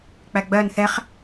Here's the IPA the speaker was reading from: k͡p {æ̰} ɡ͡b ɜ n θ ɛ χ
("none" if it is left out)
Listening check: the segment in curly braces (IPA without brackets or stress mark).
æ